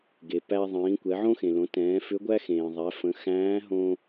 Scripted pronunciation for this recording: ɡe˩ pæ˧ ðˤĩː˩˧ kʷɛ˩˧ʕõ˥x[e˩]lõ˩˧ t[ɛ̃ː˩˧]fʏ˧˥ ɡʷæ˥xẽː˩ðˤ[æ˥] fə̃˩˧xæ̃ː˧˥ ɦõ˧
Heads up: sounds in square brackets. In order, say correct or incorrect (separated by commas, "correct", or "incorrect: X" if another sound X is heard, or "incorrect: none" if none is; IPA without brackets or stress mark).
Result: incorrect: ẽ˩, correct, incorrect: æ˩˧